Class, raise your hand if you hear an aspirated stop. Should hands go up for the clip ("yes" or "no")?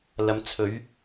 yes